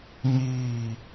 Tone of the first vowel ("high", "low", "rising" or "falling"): falling